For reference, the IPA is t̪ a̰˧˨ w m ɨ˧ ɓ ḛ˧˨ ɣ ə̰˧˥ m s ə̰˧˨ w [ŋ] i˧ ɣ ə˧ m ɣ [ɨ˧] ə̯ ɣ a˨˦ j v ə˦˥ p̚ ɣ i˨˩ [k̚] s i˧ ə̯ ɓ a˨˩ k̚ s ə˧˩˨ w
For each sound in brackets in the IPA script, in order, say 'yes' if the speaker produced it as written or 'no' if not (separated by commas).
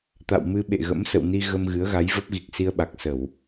no, no, yes